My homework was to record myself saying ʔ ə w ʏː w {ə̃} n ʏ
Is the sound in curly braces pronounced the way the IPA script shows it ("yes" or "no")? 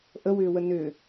no